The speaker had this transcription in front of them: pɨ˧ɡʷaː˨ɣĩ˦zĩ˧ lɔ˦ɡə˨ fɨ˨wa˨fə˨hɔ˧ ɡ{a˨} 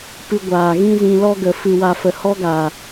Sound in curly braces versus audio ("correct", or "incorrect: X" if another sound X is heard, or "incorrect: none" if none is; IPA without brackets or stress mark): correct